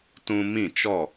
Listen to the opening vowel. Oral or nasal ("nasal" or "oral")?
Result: nasal